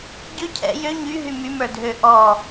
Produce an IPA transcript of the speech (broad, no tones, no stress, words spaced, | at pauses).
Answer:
ɟø cʰɛ̰ jø ɲyɦy mymə˞dʱø ʔɔ